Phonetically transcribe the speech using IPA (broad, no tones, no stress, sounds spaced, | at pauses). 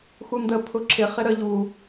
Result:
x u n d ə pʰ ʊ ǁʰ ɪ χ ɪ ɾ ə ʎ u